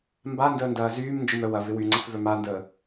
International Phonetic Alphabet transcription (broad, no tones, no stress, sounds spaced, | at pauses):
m b a n d əː n d ɐː z yː m n d͡ʒ ʊ m œ w ɐ v ɪ w y ŋ͡ǀ ə s v œ m a n d əː